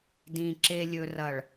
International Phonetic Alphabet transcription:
d ĩ˨ ǁ e˨ lʲ ɵ˨ r ɐ˨ ɭ

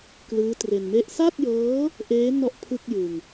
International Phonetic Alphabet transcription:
k l ɯː˦˥ t r e˧ n m e˥˩ ʔ s a˥˩ t̚ j ɤː˦˥ | ʔ eː˦˥ n ɔ˥˩ ʔ pʰ ɯ˥˩ k̚ j ɯ˧ ŋ

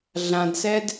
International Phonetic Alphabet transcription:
ɮ ã d s ɛ d

